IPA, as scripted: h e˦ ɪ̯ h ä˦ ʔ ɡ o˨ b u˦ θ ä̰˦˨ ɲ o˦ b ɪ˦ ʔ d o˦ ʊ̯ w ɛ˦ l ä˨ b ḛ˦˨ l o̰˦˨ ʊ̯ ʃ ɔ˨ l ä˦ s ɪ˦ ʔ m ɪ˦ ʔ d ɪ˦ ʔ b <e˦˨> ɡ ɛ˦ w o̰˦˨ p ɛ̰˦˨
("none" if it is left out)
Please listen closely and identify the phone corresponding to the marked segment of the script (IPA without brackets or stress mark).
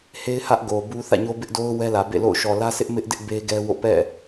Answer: e˦